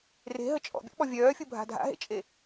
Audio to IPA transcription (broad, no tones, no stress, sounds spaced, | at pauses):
r e̤ ɦ ə t͡ʃʼ ɔ̰ bʲ ɔ̰ ɓ ɔ vʲ œː fʲ u bʱ a̤ dʱ a̰ ɦ ḛ t͡ʃʼ e